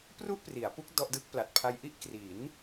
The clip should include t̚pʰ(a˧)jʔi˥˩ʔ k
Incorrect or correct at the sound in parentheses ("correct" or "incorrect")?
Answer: correct